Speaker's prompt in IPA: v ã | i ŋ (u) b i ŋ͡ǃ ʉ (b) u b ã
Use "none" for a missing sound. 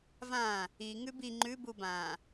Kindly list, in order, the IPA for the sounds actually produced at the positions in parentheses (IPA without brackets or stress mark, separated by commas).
ʉ, b